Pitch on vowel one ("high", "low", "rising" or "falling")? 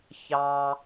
low